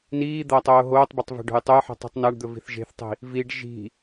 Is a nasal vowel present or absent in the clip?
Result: absent